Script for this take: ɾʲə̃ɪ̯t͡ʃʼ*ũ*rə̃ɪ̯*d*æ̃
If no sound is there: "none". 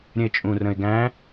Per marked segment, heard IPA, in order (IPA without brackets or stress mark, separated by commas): ũ, ɡ